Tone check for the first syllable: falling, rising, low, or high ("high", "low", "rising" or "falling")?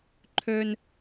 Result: high